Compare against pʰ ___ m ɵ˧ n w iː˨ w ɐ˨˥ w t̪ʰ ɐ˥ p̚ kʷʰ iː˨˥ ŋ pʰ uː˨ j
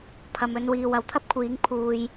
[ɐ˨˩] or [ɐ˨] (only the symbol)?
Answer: ɐ˨